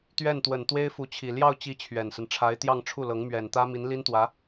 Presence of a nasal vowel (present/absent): absent